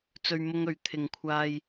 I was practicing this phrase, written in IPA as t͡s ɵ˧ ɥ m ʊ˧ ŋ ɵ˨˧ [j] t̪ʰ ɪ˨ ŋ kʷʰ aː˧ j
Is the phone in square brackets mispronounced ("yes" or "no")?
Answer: yes